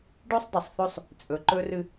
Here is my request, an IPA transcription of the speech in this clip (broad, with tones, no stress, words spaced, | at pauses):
ɖʉ˦sˤ dˤɨ˨sˤθʉ˦sˤ | t͡sʼɵ˨ǃɵ˦rɨ˦